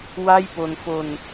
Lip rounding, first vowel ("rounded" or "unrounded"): unrounded